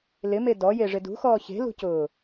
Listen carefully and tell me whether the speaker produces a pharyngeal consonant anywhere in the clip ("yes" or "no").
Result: no